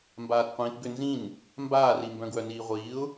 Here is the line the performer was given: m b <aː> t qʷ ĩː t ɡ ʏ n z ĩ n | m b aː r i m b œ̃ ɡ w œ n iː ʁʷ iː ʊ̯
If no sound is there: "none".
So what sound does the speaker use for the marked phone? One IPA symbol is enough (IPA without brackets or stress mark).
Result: aː